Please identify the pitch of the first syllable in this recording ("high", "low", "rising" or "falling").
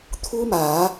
high